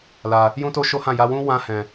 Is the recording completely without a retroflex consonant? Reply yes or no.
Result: yes